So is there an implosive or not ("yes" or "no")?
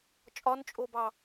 no